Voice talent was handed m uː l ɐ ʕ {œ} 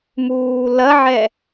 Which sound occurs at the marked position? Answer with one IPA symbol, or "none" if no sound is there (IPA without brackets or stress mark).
ɛ